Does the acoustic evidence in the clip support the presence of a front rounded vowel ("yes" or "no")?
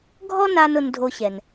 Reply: no